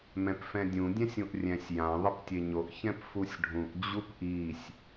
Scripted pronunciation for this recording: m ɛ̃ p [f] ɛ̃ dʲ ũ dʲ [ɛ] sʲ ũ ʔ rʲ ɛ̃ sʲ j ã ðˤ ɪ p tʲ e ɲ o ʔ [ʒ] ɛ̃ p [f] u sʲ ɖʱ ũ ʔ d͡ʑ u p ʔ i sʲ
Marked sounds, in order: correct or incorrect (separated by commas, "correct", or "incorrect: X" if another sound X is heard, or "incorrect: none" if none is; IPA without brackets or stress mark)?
correct, incorrect: ɛ̃, incorrect: ç, correct